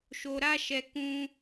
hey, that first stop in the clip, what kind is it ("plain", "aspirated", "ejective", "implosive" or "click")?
plain